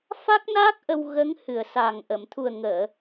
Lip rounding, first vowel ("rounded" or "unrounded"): unrounded